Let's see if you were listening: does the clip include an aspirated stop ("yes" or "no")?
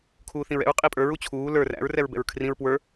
yes